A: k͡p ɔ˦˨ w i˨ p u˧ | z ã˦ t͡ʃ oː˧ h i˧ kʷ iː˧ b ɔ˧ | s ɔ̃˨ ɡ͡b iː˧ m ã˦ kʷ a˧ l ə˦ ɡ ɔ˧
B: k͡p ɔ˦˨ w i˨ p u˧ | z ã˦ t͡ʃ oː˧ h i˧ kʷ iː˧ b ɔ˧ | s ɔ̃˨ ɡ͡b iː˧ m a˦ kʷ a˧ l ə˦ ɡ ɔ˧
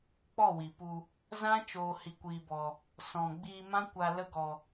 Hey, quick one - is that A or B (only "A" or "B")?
A